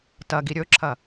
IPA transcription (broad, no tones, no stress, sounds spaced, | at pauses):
t ɐ ɡ i ɾʲ ɵ ǁʰ ɐ